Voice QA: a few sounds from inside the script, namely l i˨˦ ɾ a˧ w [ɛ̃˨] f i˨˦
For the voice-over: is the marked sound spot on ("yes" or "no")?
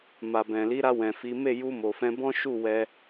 yes